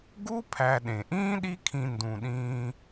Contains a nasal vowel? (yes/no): yes